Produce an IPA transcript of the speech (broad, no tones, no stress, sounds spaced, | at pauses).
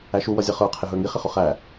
æ ʃ u w ʌ zʲ ʌ χ ə˞ qʰ ɪ ɦ ə˞ ŋ i χ ɪ χ ʊ χ æ